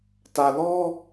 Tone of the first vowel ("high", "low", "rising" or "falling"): low